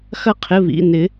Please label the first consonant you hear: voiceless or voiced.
voiceless